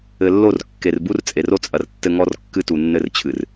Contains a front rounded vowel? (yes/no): no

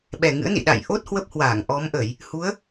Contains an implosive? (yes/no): yes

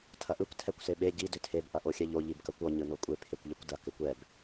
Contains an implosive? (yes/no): yes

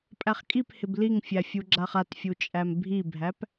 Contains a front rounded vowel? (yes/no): no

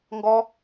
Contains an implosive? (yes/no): no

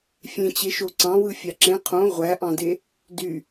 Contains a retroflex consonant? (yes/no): no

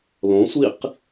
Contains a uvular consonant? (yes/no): yes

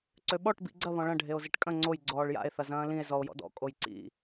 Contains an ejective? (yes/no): yes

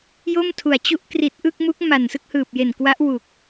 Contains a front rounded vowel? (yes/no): no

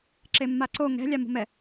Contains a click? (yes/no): yes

